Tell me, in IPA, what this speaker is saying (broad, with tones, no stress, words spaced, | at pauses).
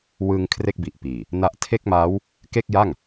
wɯ˧ŋ kʰre˥˩k̚bi˨˩ʔpiː˨˩ | na˥˩ʔ tʰe˥˩k̚maː˦˥w | ke˥˩k̚ja˥˩ŋ